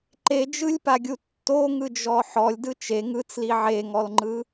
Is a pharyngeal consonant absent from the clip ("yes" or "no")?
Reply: no